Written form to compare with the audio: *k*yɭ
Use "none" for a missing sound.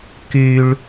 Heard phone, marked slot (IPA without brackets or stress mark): k